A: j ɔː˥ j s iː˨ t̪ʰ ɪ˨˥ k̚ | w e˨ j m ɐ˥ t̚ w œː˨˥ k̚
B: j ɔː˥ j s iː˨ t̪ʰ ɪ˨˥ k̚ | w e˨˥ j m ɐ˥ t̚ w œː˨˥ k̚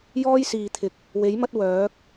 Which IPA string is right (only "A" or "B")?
B